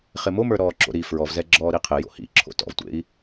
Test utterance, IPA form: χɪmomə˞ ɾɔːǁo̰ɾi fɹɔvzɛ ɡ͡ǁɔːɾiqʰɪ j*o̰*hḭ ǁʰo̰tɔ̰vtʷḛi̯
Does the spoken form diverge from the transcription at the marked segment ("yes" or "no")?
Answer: no